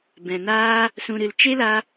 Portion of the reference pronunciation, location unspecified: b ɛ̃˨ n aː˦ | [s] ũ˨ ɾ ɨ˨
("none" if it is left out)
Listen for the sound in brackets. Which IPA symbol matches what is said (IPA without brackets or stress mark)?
s